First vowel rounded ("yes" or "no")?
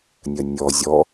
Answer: no